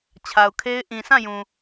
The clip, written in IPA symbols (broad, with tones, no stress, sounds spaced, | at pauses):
t͡ɕʰ a˨ ʊ̯ kʰ e˦ ɪ̯ ʔ ĩ˨ sʰ ã˦˨ j ũ˨